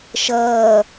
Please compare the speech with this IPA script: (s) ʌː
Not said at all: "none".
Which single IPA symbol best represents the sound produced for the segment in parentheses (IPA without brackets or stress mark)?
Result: ʃ